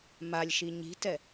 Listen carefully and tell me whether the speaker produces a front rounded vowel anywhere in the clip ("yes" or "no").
no